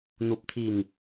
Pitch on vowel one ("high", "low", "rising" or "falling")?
low